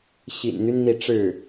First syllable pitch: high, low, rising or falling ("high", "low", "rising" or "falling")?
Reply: low